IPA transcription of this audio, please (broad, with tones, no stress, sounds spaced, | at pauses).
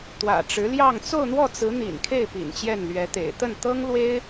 t̪ w ä̰˨˩ ʈ͡ʂ ɻ̩˧˥ l j ɑ˥˧ ŋ t͡s o˥˧ ʊ̯ n̪ w ɔ˥˩ t͡s ɹ̩˧˥ n̪ ḭ˨˩ n kʰ e˥˩ ɪ̯ p ḭ˨˩ n t͡ɕ j ɛ˥˩ n l ɥ ɛ˧˥ t̪ ḛ˨˩ ɪ̯ t̪ ə˥˩ n t̪ ɤ˥ ŋ l w e˥ ɪ̯